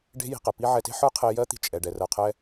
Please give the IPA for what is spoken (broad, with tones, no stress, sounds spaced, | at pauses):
ɖ e̤˥ j i̤˧ q ɛ˩ p i˥ ʕ ɛ˧ t e̤˥ ħ ə˞˥ qʰ e˧ j ɜ˥ t̪ i̤˧ t͡ʃʼ ɛ˩ ɖ ɛ˩ r ɜ˩ qʰ ɛ˧